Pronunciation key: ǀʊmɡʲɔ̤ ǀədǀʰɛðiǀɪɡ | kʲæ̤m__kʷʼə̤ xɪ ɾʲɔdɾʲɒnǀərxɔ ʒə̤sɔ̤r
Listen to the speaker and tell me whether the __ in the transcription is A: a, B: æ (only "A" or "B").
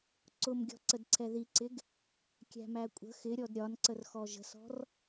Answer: B